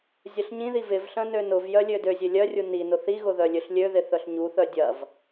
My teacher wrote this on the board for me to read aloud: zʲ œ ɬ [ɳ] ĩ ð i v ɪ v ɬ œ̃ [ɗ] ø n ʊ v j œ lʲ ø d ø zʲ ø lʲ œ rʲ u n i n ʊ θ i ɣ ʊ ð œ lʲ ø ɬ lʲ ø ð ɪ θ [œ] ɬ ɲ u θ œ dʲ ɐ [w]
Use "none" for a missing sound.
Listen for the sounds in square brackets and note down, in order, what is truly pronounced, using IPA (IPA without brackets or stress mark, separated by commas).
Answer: ɲ, n, œ, v